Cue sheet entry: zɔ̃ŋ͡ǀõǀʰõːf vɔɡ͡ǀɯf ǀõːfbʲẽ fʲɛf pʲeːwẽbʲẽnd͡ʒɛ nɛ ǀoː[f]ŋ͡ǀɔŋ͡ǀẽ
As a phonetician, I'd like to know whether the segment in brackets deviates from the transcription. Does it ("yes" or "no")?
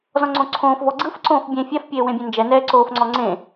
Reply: no